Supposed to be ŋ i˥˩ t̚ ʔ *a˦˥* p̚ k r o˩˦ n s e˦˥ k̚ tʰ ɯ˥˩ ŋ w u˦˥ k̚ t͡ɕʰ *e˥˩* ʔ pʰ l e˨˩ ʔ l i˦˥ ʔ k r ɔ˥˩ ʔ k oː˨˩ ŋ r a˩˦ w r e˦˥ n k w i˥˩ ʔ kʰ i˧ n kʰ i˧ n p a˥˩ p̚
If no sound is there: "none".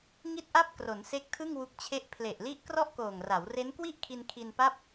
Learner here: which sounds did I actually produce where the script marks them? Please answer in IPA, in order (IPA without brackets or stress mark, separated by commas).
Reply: a˥˩, e˥˩